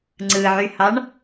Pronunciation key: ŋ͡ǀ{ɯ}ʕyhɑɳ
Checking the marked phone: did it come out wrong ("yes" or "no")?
no